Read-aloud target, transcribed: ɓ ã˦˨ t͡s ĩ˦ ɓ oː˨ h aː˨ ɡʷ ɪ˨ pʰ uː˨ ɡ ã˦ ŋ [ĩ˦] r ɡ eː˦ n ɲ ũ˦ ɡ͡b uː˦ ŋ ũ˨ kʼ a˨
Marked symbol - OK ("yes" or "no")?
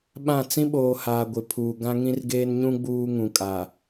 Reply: yes